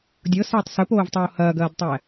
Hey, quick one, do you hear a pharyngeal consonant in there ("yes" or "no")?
no